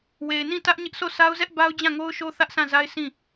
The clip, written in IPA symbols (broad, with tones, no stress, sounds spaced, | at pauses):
w e˨ ɪ̯ n ĩ˦˨ t ä˦ ʔ ɲ ɪ˦ ʔ sʰ o˦˨ s a˦ ʊ̯ z ɛ˦ ʔ b a˦ ʊ̯ d͡ʑ ã˦˨ ŋ o˦ ʊ̯ ʃ o˦ θ ä˦ ʔ sʰ ã˦˨ z a˦ ɪ̯ s ĩ˦˨